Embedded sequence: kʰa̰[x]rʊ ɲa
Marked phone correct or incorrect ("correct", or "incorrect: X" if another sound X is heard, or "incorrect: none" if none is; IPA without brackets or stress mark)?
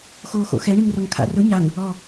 incorrect: none